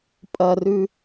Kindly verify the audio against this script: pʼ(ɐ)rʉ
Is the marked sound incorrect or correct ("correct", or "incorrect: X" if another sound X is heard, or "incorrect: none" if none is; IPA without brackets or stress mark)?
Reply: correct